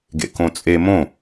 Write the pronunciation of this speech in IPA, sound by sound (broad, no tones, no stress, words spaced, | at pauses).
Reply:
ɡḛkõt͡sʼe mõ